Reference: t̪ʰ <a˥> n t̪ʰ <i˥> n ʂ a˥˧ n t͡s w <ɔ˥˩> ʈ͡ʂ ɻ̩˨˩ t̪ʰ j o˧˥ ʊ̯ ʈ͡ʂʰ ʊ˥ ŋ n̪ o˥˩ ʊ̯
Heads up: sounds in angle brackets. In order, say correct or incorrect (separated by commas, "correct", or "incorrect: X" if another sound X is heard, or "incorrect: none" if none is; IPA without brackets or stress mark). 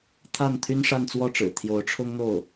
incorrect: a˥˩, incorrect: y˥, correct